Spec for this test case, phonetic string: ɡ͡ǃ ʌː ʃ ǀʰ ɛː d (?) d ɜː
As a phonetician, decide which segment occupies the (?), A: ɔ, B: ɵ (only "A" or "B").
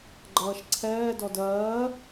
A